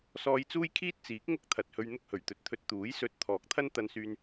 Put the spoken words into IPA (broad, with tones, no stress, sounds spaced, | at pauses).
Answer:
s ɔː˧ j t͡s uː˥ j kʰ iː˥ t̚ t͡s iː˨˥ k̚ ŋ ʊ˥ k̚ t̪ʰ ɐ˨ t̚ h ɵ˧ ɥ n̪ ʊ˥ k̚ h ɵ˨˩ ɥ t̪ ɵ˨˥ t̚ t̪ʰ ɵ˧ t̚ t̪ uː˨˥ j s ɵ˧ t̚ t̪ʰ ɔː˨˥ k̚ t̪ʰ ɐ˥ n t̪ ɐ˧ n s yː˧ n